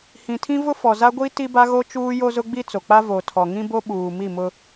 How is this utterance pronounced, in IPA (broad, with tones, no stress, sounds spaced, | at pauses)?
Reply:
h ĩ˨ tʰ ĩ˦ v ʊ˦ f ɔ˨ z a˦ ɡʷ i˦ t i˦ b a˦ ɣ o˦ t͡ʃ uː˦ j o˦ z ʊ˦ ɡ͡b i˦ t͡s o˨ k͡p a˦ v o˨ tʰ ɔ˨ ŋ ĩ˦ b o˦ ɓ uː˨ m i˦˨ m ʊ˦